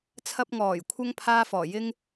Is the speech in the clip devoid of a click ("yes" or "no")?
yes